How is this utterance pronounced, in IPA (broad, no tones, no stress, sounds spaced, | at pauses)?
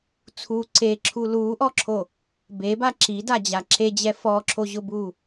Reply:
t͡sʰ uː ǀ e ǁʰ u l uː ʔ ɔ ǁʰ o | b e b a ǁ i d a d͡ʑ a ǁ e d͡ʑ ɛ f ɔ ǁʰ o ʑ ʊ b uː